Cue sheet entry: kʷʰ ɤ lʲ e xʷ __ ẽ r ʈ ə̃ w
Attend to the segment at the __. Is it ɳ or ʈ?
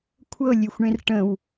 ɳ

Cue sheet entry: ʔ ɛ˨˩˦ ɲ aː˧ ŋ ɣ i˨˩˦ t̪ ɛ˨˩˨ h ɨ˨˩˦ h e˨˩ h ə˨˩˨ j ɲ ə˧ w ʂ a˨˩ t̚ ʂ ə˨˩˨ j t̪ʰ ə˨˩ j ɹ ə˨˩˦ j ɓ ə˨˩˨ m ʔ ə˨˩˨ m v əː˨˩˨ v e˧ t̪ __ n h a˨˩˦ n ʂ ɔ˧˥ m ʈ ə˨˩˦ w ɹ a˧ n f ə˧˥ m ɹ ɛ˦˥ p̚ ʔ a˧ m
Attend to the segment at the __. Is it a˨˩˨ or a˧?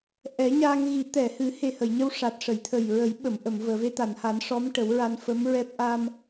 a˨˩˨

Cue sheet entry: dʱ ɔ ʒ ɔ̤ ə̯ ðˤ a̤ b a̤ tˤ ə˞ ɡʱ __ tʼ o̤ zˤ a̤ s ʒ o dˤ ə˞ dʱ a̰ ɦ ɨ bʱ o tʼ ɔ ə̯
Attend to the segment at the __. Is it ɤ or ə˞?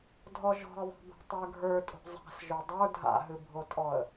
ə˞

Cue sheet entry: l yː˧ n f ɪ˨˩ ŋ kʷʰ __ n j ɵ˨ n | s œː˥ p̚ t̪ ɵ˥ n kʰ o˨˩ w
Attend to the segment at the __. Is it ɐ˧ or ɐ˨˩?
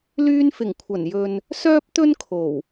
ɐ˨˩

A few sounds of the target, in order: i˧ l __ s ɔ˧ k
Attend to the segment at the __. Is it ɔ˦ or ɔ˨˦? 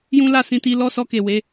ɔ˦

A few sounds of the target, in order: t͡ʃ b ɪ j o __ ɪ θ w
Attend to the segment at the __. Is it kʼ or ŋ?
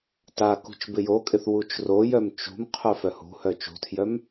kʼ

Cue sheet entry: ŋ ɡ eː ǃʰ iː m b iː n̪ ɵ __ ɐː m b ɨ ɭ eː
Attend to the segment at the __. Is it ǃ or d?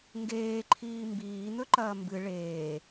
ǃ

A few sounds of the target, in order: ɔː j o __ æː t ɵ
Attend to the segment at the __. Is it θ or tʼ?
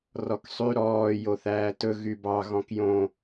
θ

